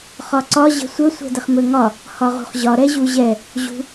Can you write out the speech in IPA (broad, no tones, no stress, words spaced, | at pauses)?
χɒǀɒ ʑə̤sʷə sʷɛ̤dəχmɵŋɒ | hɒʁṳχʑɒ ɾɛʑuʑɛ | ʑṳ